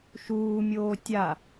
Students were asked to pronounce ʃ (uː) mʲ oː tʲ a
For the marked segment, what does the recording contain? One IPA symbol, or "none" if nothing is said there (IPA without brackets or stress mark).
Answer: uː